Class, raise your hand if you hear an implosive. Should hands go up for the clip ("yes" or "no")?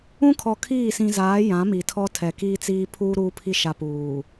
no